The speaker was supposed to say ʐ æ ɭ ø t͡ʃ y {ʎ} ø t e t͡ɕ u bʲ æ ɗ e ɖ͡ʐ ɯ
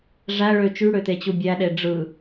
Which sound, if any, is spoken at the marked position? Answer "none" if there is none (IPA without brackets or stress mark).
ɽ